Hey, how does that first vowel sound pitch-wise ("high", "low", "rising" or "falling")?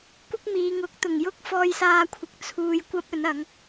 high